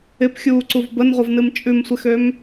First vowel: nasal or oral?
oral